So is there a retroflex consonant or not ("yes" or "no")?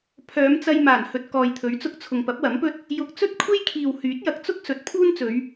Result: no